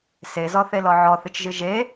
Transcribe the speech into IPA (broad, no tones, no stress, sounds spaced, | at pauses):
s e z ɔ θ e l ɔ ʕ ɔ θ ɨ t͡ʃ ʒ ɨ ʒ e